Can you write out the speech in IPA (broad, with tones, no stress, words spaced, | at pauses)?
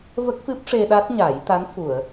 və˦˥k̚ fɨ˦˥p̚ʂe˧ɗa˦˥t̚ ɲa˨˩˦j t̪a˧˥nfu˨˩˨ə̯